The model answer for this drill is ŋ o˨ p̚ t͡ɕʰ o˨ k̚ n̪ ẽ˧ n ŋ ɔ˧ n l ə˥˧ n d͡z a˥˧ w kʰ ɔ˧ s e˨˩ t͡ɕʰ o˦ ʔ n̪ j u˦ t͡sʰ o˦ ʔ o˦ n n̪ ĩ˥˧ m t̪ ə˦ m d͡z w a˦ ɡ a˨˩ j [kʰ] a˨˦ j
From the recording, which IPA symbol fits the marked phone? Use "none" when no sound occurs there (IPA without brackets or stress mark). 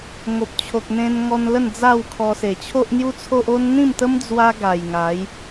ŋ